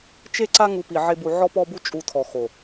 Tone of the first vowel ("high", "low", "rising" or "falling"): high